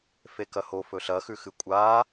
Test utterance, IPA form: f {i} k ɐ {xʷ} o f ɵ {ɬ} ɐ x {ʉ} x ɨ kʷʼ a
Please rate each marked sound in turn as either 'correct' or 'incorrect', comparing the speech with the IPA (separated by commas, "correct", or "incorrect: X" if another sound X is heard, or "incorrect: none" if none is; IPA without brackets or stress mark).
incorrect: e, incorrect: h, correct, correct